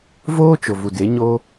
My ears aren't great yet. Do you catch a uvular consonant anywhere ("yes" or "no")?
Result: no